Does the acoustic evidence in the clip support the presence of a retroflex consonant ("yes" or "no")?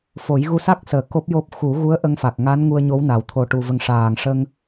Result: yes